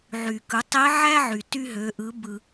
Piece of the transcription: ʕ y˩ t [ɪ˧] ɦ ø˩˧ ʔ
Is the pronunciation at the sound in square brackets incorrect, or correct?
incorrect